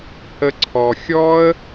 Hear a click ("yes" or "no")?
yes